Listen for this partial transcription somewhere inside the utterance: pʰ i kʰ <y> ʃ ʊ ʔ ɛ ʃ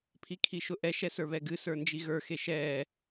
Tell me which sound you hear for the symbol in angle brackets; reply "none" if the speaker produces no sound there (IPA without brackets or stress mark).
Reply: i